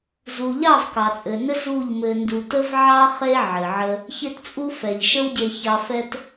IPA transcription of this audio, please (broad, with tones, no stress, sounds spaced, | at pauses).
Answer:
z u˨ ʎ ɑ˦˨ v k ɑ˨ t͡sʼ ɘ˨ n ɘ˦ z u˦˨ ʎ m ɘ˧ n d u˧ t ə˦ v ʕ ɑ˦ χ e˦ ʕ ɘ˨ ʕ ə˧ | ç e˦ t t͡sʼ u˦ f ɛ˨ ʎ ʃ ə˦ w ɟ e˧ ç ɑ˧ f ɛ˧ t